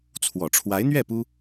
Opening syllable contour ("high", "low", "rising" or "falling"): low